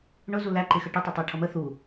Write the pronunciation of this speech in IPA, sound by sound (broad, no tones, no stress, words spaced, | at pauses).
ɳʊzu læǃɪxə ʈʊtˤʌtˤæʈʰʌ mə θu